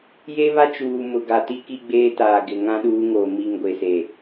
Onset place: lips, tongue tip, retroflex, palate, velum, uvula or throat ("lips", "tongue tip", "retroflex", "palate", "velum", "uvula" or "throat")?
palate